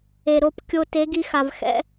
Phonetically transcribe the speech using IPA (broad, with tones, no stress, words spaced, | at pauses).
e˨ ɾo˧p kʲo˧ te˨˦ɡi˧xa˨v xɛ̰˦